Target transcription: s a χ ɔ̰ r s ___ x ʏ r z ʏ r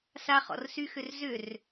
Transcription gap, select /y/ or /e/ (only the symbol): y